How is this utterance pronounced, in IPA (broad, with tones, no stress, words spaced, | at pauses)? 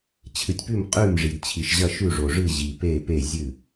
t͡ɕʰɨ˨tʲpʉ˥˩m qʼʉ˥˩mʐi˨d t͡ɕʰi˨ʃʑɐ˥˩ ʃʉ˥˩ʐo˨ʐɨ˥˩ ʑi˨pe˥˩ pe˥˩zʲɨ˥˩